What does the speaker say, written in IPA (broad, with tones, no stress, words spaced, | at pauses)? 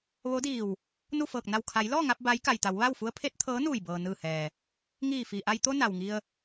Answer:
ʋo˧˥diː˧˩w | nu˥˨fɤː˧˩k̚ na˧˩wkʰa˩˧jlɔː˥˨ŋa˧p̚ ba˧˥j ka˩jt̪a˩˧w ʋa˥˨wfu˧˥ə̯pʰe˧˥t̚ t̪ʰɤː˧˥nuː˧˩jbɤː˩ nɯː˧˩hɛː˩ | ŋiː˧˩fiː˩ʔa˧j t̪o˧ na˩wŋi˧ə̯